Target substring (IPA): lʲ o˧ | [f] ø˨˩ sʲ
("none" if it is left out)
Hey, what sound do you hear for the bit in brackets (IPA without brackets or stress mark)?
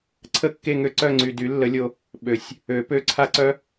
ɓ